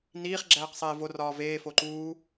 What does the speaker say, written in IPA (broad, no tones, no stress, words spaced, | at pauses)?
niːχ ɡ͡ǁæːqsˤeːvo rɒːveːfo ǃuː